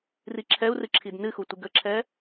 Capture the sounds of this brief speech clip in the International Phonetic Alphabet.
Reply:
r i ǁʰ ɛ u̯ r ɨ ǁʰ i d n ɨ x u tʷ ɨ ɡ ə ǁʰ ɛ

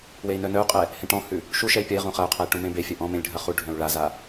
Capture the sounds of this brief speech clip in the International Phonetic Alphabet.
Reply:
w e i̯ n œ n œ u̯ qʼ ɛ | h ẽ ʈ ɔ̃ h ʉ | ʃ u ʃ ɛ i̯ pʲ ɐ i̯ ʁ ũ χ ɐ u̯ qʰ ɐ i̯ ʈ ũ m ẽ b e fʲ œ ʔ ɔ̃ m ẽ lʲ ɖʱ ɐ χ u ɖʱ œ̃ u̯ ɭ a z a

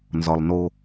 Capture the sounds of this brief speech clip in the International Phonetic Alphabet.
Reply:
n z ɒ˨ lˠ n o˦

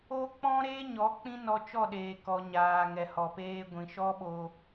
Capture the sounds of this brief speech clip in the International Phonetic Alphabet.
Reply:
o˦ k͡p ɔ̃˦ ɾ eː˦ ɲ ɔ˨˦ k͡p ĩ˦ n ɔ˧ t͡ʃ ɔ˦˨ ɗ eː˨ k ɔ˨ ɲ aː˨ ŋ ɛ˨ h ɔ˨ p eː˦ ɡʷ ĩ˨ ʃ ɔ˦ ɓ o˧

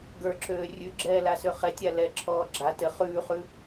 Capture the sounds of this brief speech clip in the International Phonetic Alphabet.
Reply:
ɡ ə˞ ǁ øː rʲ ʉ ɡ͡ǁ ɛː l a s ø χ ɛ tʲ a l ɛ ǁʰ ɔː ɡ͡ǁ a t ɘ χ ʉː χ ʉ

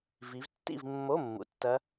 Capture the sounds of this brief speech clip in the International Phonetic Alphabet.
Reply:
v i˨˦ v tː ḭ˥˨ v mː o˧˥˧ mː ṵ˨˦ tː ɐ˦˥

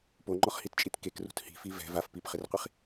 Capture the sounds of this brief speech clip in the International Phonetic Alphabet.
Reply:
p o ŋ͡ǃ ɔ χ h i t t͡ʃʼ i t k e k r ṳ t h i̤ f i v ɛ̤ v a f p i p χ ɪ r qʷ i χ

